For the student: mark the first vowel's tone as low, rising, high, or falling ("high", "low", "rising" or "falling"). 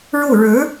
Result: falling